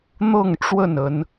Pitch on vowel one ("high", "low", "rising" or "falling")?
falling